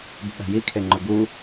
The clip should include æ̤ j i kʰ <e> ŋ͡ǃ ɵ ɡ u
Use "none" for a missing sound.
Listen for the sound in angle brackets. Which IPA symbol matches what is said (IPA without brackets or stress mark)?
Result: e